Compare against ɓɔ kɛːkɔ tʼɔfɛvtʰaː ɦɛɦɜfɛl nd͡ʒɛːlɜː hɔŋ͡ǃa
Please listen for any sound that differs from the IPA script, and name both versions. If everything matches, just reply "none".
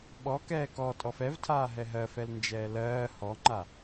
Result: none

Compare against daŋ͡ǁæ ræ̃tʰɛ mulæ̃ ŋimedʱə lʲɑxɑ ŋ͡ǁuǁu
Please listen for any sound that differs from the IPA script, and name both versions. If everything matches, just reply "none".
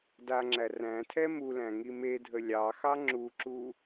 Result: none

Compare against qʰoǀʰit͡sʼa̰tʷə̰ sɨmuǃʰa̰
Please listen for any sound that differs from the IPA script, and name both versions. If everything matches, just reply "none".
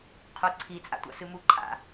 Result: ə̰ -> a̰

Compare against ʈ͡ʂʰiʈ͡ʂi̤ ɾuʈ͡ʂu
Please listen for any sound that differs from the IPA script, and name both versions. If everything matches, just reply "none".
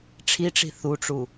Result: ɾ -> θ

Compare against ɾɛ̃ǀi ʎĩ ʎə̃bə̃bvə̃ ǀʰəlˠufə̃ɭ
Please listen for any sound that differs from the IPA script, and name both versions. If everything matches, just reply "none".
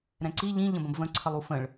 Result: none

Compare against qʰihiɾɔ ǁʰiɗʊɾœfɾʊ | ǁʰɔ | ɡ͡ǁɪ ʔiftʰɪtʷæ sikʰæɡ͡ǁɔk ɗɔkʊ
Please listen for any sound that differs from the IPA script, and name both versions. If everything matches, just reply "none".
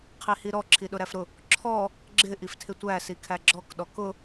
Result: œ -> æ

